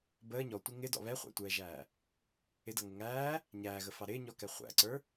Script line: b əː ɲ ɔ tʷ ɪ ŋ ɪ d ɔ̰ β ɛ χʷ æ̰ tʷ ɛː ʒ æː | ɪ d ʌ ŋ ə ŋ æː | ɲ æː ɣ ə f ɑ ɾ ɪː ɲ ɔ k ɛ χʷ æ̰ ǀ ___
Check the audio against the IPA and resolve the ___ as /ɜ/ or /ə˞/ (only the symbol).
ə˞